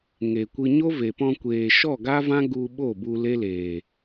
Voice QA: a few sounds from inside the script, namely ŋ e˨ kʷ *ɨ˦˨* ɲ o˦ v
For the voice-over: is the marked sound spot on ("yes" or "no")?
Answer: no